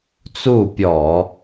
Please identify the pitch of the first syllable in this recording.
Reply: falling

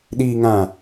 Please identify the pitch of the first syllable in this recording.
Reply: low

